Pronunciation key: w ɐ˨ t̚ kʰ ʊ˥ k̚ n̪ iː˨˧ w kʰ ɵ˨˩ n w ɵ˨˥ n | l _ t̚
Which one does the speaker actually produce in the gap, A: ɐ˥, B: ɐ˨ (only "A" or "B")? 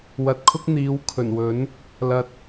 B